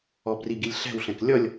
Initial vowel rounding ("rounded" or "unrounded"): rounded